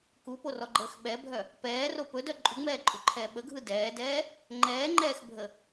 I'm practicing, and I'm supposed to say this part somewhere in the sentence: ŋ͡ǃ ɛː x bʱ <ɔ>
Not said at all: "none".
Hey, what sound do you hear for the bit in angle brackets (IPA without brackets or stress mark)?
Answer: ə